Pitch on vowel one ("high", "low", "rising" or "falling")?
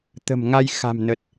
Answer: low